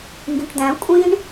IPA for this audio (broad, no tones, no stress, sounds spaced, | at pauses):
ŋ ɡ ĩ ʈ d̪ æ̃ kʷʼ ĩ ɳ